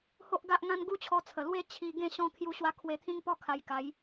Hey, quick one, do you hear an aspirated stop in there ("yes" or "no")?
yes